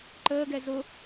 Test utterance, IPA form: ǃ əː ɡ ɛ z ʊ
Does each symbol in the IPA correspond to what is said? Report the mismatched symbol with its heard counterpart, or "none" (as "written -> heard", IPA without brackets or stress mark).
none